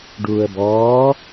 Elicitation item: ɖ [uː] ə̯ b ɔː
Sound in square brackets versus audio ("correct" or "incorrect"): correct